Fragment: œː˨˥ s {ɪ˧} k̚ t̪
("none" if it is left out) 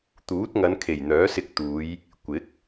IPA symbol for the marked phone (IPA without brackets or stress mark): ɪ˧